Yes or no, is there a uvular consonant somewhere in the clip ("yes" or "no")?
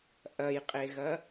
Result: yes